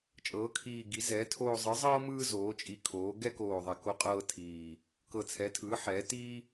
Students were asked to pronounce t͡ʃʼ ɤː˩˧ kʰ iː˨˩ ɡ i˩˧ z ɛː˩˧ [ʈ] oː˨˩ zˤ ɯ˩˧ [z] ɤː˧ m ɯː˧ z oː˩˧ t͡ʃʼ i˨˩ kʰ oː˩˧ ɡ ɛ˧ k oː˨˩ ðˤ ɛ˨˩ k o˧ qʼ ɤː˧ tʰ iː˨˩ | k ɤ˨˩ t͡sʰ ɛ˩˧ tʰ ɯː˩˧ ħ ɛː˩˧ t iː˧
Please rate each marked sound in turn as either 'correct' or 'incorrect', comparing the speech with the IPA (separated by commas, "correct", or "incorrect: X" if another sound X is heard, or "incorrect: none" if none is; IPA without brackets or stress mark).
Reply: incorrect: tʰ, incorrect: zˤ